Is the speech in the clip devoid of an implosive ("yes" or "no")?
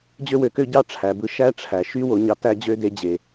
yes